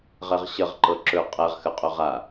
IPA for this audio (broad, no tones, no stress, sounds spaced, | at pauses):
ʁ ɛ ʁ ɕ ə ʁ ǃ ɤ ǁ ɵ qʼ ɛ ʁ x ə qʼ ɵ ʁ a